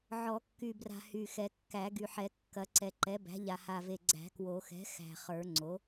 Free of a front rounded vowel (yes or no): no